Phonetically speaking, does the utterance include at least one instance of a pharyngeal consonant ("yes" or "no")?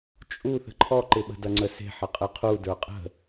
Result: yes